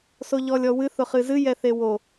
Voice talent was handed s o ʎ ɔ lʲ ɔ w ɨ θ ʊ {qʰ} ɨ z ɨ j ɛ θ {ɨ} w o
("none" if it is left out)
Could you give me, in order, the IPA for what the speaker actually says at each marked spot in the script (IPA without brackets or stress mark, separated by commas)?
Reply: χ, e